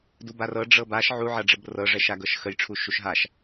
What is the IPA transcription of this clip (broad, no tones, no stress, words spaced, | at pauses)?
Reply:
dubarɤ ɖ͡ʐɤbaʃ ʕuʕɐɖ͡ʐəb rɤʐɛʃaɡɤʃ xəjʈ͡ʂʰuʃuʃ ɦaʃ